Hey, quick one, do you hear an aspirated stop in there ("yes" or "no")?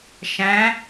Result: no